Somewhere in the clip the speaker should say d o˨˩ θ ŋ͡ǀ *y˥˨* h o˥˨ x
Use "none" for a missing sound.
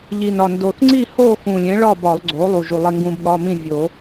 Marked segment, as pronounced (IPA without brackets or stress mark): i˥˨